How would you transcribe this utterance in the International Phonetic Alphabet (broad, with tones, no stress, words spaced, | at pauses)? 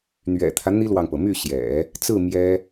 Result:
n̪ɥɛ̰˨˩t̪ʰä˦ n̪i˥lwɑ˨ŋpɤ˩my˥˩ ɕjɛ̰˨˩˦ | t͡sɹ̩˥˩ mjɛ˥